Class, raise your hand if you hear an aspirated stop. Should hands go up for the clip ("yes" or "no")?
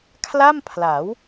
yes